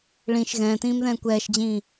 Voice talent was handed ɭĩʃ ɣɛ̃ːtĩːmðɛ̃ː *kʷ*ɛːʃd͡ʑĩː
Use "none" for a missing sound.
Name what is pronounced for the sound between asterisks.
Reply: kʷ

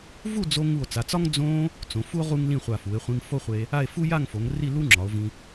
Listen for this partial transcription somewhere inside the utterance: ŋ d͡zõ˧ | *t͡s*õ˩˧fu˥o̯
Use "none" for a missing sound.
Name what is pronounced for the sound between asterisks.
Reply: t͡s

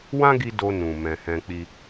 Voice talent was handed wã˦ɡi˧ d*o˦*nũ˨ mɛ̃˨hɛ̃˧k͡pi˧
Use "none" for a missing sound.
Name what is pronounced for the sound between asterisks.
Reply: o˧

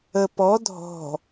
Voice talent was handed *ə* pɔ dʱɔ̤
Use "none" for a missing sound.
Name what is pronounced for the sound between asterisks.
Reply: ə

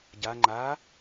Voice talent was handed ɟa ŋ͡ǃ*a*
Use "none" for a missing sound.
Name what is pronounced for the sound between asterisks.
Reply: a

